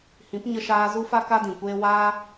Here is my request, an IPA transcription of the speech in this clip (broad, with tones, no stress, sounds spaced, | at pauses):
h ĩ˨˦ p ɲ ə˧ ʃ aː˧ z u˦ f a˦ k a˦ d ĩ˨ kʷ eː˦ w aː˦